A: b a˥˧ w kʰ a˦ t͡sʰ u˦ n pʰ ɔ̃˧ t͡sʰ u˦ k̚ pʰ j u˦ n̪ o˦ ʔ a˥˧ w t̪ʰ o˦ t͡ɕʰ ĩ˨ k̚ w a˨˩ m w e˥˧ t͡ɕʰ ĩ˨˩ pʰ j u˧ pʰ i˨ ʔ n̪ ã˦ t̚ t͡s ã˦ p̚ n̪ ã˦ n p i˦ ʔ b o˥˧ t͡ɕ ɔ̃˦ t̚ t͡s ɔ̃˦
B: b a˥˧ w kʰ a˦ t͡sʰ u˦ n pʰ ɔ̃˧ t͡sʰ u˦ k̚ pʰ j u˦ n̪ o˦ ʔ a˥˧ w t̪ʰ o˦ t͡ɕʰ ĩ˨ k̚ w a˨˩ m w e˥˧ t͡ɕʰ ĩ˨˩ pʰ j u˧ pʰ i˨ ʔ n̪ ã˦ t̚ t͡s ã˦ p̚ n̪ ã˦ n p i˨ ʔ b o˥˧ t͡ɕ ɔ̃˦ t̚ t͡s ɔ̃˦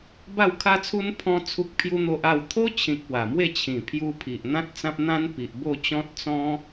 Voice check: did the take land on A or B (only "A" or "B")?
B